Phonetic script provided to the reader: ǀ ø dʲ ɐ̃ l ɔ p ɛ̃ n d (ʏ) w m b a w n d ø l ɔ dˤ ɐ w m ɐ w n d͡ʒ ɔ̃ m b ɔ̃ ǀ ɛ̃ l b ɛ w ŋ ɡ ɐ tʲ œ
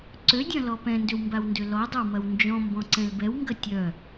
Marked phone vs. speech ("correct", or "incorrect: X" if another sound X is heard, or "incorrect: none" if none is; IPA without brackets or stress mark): correct